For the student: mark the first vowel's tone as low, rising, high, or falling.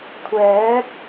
rising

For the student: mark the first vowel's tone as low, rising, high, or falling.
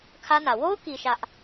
high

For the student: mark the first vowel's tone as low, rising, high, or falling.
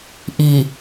low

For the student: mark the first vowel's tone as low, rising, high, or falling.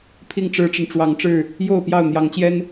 falling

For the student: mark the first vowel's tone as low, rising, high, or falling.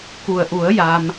low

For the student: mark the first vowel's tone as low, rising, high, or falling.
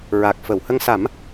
low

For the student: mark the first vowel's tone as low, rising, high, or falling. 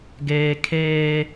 high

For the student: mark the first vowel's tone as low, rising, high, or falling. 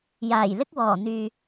low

